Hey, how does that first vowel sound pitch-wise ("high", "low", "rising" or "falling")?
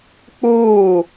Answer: falling